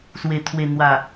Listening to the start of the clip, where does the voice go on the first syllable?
low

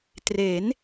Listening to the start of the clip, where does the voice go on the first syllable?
rising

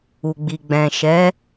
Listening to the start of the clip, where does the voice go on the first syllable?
low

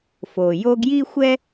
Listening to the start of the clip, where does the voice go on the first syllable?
low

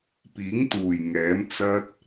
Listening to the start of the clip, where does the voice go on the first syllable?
rising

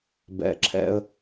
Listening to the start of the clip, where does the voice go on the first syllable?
low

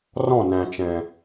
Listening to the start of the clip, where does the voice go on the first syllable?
falling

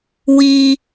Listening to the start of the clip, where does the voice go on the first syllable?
high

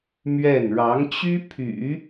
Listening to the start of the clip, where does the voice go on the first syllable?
falling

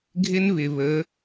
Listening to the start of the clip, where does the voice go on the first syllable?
high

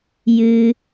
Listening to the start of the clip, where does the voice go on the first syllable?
high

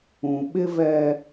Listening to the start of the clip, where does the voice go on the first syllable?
low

